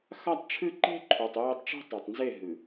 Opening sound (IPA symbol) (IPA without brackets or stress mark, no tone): x